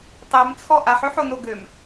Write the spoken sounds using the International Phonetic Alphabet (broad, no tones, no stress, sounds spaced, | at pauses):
tˤ e m t͡sʰ ɔ ʔ a ħ ø ħ o n o ɡ ø m